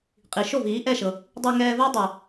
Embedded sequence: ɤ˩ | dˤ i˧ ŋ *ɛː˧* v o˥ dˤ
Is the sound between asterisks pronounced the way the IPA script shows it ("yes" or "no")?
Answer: yes